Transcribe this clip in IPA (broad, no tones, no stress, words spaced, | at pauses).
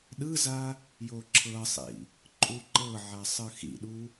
ɗɯza | joǁʰɤsˤḭ | ǃʼuǃɤʕa sˤɯxḭɗu